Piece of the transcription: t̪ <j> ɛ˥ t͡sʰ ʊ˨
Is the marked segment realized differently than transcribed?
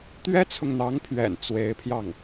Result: yes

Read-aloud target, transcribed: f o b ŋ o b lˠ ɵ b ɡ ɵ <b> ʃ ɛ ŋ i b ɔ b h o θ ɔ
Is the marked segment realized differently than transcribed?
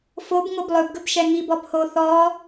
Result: no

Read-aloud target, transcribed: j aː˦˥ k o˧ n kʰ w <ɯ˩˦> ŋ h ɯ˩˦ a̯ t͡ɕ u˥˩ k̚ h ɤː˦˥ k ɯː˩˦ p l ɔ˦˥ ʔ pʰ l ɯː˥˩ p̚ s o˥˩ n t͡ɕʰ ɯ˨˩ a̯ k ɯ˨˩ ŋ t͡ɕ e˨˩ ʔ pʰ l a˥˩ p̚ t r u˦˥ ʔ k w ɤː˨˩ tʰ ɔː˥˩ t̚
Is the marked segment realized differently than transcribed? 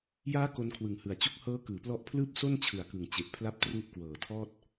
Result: no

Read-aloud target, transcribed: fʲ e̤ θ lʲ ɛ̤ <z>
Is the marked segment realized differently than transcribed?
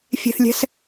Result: yes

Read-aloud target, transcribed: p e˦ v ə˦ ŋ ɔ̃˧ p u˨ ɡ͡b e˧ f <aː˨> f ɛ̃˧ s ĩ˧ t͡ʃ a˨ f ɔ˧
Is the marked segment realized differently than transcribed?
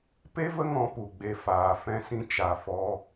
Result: no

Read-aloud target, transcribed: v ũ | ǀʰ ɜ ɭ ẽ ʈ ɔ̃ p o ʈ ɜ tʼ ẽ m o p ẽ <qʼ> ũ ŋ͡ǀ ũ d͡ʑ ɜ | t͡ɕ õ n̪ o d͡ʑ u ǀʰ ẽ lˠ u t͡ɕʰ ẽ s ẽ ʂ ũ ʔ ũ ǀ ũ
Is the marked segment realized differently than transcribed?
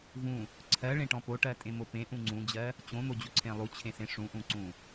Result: yes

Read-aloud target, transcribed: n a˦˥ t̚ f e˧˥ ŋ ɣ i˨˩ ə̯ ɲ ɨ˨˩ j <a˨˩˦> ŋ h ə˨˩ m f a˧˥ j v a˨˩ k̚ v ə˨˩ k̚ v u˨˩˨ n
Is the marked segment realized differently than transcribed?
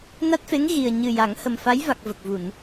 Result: no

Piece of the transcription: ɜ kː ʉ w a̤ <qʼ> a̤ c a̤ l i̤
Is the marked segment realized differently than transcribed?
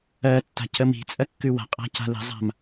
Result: no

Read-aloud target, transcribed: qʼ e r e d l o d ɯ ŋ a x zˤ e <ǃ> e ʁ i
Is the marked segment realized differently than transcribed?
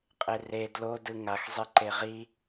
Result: no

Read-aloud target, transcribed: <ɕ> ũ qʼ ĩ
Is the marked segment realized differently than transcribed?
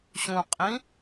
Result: no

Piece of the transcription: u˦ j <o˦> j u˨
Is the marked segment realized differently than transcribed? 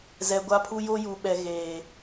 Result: no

